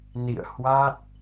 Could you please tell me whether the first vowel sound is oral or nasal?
oral